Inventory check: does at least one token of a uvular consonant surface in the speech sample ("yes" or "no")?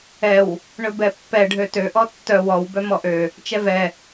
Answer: no